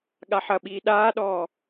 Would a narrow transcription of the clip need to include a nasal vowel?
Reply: no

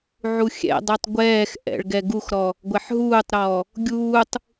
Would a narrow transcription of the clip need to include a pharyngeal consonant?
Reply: yes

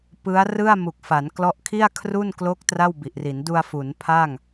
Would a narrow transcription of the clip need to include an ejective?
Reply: no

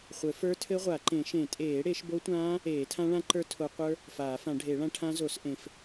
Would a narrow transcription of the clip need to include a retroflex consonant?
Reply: yes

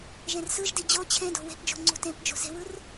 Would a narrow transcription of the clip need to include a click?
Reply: yes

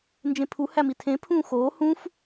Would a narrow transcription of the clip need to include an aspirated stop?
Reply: yes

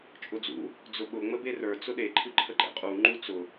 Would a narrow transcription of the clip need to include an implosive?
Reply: yes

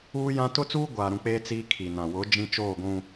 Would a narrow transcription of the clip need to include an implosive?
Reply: no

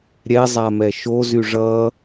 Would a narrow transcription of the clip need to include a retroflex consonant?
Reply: yes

